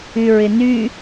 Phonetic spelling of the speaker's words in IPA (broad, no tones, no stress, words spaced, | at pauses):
yɹɪny